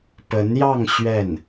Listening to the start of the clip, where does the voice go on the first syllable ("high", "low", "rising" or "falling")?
rising